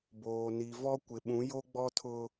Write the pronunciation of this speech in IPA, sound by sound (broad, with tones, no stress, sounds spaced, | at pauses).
b oː˨ n i˨ v ɔ˦ kʷ ɪ˨ ɓ ũ˨˦ j o˦ ɡ͡b ɔ˦ tʰ ʊ˦